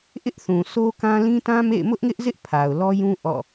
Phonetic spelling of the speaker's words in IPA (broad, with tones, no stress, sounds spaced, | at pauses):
ʔ ɪ˦ ʔ θ ũ˨ s o˦ k ã˦ l ĩ˦ t ã˦ m ḛ˦˨ ɪ̯ m ʊ˦ ʔ ŋ ɪ˦ ʔ z ɪ˦ ʔ pʰ a˨ ʊ̯ l ɔ˦ j ũ˦ ʔ ɔ̰˦˨